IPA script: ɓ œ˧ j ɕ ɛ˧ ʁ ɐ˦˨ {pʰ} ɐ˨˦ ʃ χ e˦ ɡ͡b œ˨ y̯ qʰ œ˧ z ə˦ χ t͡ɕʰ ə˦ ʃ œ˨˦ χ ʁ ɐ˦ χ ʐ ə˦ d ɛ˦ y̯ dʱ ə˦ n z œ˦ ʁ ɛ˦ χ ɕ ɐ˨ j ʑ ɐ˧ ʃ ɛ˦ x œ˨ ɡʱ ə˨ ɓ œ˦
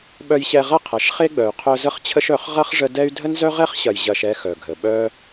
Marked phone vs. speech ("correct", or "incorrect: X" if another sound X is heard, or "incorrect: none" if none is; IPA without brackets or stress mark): incorrect: qʰ